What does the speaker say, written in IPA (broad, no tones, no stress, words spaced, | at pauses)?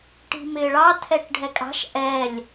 ʈi̤mɪːɭɑ tʰɛʈɖʱɛkʼɑ̤ʃ ʔɛlʲ